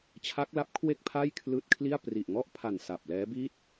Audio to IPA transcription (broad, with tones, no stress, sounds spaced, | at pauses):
t͡ɕʰ a˦˥ k̚ l a˦˥ p̚ kʰ w e˥˩ k̚ pʰ a˥˩ j kʰ l ɯː˦˥ t̚ kʰ l i˥˩ a̯ p r i˨˩ ʔ ŋ ɔ˥˩ ʔ pʰ a˨˩ n s a˨˩ p̚ l ɛː˦˥ b i˥˩ t̚